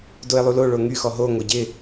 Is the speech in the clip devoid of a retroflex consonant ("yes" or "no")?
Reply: no